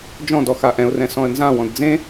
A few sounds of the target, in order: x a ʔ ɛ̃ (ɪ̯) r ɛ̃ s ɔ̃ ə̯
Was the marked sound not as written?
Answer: yes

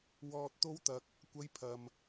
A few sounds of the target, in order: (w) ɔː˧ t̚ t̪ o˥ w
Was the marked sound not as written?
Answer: no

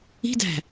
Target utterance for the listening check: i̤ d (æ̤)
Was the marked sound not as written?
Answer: no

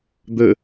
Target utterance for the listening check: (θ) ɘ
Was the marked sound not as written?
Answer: yes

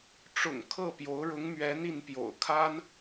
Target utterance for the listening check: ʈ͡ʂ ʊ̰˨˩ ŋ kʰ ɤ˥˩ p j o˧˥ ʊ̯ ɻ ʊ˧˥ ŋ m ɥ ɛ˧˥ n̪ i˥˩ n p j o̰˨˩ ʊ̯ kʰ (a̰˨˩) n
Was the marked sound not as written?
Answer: yes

